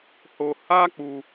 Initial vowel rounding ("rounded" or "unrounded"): rounded